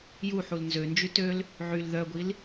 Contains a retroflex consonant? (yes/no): no